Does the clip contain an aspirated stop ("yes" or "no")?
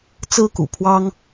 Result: yes